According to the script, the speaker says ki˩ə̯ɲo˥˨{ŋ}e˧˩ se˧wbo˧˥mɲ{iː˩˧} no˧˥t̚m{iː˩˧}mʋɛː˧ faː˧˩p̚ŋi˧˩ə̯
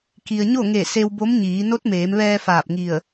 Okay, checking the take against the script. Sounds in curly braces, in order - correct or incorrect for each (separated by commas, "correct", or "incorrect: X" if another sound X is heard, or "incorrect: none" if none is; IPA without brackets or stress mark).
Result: correct, correct, incorrect: eː˩˧